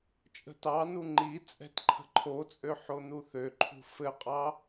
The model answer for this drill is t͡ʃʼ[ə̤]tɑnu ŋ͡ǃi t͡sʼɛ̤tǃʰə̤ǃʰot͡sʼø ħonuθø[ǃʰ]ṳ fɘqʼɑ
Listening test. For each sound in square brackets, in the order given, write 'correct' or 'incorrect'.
correct, correct

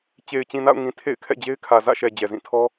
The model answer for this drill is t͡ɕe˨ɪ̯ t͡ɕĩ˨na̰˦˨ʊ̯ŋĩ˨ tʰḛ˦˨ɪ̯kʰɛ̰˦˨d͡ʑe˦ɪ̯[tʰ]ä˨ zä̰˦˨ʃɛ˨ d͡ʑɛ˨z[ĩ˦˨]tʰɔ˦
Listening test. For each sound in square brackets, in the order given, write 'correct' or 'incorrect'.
incorrect: kʰ, correct

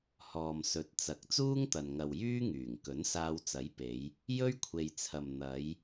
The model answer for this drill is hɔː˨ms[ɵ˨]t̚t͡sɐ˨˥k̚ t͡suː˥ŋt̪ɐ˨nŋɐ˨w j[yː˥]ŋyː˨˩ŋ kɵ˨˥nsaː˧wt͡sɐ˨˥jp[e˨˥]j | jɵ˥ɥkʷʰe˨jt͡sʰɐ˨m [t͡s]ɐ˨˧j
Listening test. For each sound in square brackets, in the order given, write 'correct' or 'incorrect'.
correct, correct, incorrect: e˨˧, incorrect: n̪

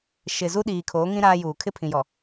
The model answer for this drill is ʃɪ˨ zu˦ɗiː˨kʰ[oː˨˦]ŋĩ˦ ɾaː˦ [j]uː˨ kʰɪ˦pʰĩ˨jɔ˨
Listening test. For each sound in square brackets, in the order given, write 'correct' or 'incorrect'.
correct, correct

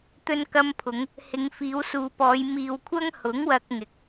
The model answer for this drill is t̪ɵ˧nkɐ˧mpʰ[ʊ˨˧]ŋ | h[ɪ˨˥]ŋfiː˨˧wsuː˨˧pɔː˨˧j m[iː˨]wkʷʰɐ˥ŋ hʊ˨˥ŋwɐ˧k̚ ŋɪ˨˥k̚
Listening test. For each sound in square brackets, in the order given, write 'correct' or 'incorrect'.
correct, incorrect: ɪ˨˧, correct

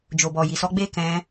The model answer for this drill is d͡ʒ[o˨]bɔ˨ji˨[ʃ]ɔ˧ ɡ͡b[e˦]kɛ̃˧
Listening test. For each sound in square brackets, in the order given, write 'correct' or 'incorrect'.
correct, incorrect: s, correct

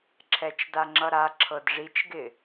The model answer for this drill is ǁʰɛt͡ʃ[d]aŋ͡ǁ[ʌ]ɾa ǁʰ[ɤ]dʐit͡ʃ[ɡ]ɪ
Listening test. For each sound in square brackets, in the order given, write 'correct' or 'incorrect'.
correct, correct, correct, correct

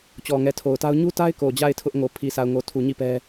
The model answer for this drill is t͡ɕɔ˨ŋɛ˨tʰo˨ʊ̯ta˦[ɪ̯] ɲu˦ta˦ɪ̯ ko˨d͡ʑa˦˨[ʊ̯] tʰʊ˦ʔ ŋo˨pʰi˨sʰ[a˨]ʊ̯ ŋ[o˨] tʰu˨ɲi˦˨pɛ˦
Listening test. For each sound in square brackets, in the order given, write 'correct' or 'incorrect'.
incorrect: ʊ̯, incorrect: ɪ̯, correct, correct

